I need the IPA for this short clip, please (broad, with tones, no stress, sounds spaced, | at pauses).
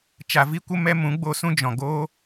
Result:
t͡ʃ a˨ v i˧ kʷ ə˧ m ɛ˧ m ũ˨˦ ɡ͡b o˧ s ũ˦ d͡ʒ ɔ̃˨ ɡ oː˦